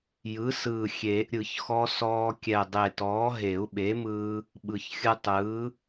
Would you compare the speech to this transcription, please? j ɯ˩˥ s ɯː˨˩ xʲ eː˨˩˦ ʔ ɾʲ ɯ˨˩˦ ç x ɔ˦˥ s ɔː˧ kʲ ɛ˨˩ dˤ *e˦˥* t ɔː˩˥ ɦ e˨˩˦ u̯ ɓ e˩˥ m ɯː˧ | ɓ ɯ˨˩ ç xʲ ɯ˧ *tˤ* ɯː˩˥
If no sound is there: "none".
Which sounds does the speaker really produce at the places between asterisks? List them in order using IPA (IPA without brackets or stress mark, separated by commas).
e˨˩, tˤ